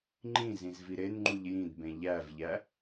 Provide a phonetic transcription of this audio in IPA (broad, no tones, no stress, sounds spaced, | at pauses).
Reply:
ŋ͡ǃ ĩ z ĩ z v i ɾ e n ŋ͡ǃ u ʎ j ĩ d b ẽ ʎ æ v ʎ æ